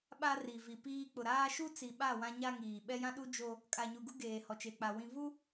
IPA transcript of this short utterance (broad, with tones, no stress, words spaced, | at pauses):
ɓa˦ri˨vi˨piː˦ k͡pʊ˨ɾaː˦ ʃu˦t͡si˨ɓa˦˨ wã˦ɲa˦ŋiː˨ ɓɛ˦jã˦ɗu˦ d͡ʒo˦ | kʼa˨ɲu˨ɡu˦ ɡeː˨hɔ˨t͡ʃe˨k͡pa˨ wĩ˨vu˦